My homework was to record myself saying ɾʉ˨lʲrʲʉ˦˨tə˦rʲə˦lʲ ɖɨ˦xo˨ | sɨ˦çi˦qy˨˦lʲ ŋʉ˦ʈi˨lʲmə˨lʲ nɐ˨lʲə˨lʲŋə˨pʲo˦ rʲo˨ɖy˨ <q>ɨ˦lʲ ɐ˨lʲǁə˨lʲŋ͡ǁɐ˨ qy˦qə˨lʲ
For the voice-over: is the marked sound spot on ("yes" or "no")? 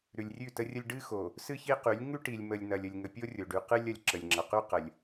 yes